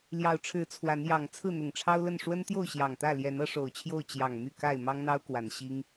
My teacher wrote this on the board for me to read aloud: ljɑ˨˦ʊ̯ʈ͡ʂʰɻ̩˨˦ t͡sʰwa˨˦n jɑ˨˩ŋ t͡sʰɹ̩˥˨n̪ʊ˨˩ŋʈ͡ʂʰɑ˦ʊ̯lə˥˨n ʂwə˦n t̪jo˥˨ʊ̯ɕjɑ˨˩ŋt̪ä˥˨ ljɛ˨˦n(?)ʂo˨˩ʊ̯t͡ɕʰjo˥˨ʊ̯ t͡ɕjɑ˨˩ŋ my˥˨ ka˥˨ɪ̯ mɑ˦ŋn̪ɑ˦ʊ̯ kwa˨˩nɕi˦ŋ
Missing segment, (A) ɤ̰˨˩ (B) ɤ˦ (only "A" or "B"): B